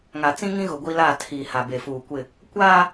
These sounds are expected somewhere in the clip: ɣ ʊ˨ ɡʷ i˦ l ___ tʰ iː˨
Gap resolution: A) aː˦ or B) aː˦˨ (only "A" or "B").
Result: B